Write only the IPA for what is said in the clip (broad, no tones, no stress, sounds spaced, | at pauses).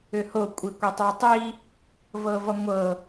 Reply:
ʏ h o kʷʼ i kʷ e tˤ o tˤ i | v ɤ v ɔ ŋʷ ɤ